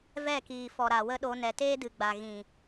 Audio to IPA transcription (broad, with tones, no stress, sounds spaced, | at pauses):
v ɛ˦˨ k iː˨ f ɔ˨ ɾ a˨ w ə˦ ɗ o˧ n ɛ˨ t eː˦ d ɨ˨ ɡ͡b a˨ ɣ ĩ˨